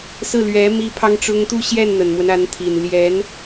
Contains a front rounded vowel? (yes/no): no